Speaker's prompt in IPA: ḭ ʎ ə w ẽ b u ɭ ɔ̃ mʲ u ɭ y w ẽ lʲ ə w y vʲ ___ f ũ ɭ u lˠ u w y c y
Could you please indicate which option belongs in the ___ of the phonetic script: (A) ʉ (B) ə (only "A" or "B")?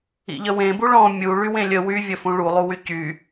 B